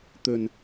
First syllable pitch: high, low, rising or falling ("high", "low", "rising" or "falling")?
low